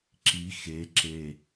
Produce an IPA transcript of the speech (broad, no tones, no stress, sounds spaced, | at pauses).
ǁ i x e ǁ e